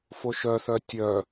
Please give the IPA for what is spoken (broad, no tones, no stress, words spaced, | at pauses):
foʃœθœ tʲœ